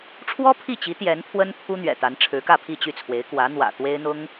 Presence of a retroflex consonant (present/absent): present